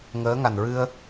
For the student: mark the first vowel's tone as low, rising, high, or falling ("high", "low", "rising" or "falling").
rising